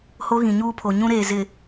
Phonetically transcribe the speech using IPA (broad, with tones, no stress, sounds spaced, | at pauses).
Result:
h o˦ ɣ ĩ˨ ɲ uː˦ pʰ o˨ ɲ ũ˦ ɾ eː˨ z ɪ˨